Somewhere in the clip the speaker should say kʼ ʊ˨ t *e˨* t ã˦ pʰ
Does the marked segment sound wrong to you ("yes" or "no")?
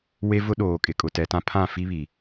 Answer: yes